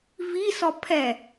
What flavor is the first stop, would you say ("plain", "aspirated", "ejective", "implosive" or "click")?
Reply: aspirated